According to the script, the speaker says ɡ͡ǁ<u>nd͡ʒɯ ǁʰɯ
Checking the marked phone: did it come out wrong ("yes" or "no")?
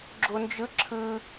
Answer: yes